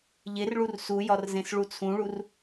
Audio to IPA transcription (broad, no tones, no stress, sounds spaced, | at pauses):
ʎ e r ɭ u r s u j ɒ r z ẽ s ɭ u t͡sʰ ũ ɭ u r